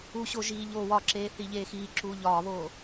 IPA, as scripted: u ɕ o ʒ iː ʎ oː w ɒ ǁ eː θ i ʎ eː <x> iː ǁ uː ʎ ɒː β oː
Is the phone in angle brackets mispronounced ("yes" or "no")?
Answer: no